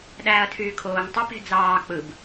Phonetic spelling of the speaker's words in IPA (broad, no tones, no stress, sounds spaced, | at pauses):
ɗ æː ɐ̯ tʰ yː kʰ oː ŋ tˤ ø p e̤ d͡z ɑː k͡p ɯ b